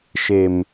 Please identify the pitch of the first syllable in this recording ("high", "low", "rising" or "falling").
low